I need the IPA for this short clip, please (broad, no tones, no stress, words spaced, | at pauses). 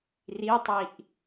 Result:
ritˤiʔ